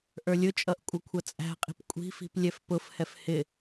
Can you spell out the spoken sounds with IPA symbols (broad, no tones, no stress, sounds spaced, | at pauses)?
ʔ ə˞ lʲ ʊ t͡ʃʼ ʌ ʔ kʷʼ ʌ kʷʰ ʌ t͡sʼ æ̤ qʼ i̤ p kʷʼ i̤ f i̤ p lʲ ɛ f p ʊ f h ɛ f h ɪ